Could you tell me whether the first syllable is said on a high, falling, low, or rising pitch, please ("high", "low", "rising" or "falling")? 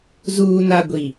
low